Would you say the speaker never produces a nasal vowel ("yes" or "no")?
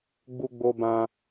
no